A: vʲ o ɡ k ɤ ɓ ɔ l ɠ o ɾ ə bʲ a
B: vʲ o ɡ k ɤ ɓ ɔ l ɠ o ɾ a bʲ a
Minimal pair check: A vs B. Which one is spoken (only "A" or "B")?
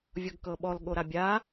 B